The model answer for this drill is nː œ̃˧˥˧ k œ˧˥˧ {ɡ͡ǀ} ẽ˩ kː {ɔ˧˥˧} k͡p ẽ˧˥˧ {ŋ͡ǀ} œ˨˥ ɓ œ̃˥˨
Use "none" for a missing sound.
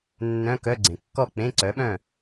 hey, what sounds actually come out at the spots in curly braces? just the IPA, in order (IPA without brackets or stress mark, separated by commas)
ɡ͡ǀ, ɔ˥˨, ǀ